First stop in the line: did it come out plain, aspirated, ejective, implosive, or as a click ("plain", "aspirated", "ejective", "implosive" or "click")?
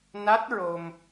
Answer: plain